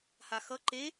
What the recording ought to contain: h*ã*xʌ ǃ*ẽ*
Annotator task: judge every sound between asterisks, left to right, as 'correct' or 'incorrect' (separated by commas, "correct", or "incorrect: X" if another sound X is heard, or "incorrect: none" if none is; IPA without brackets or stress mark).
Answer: incorrect: a, incorrect: e